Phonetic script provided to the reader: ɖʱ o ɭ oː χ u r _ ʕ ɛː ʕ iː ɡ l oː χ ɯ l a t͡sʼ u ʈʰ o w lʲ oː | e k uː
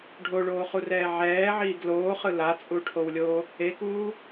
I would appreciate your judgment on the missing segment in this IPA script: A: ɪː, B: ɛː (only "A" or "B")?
B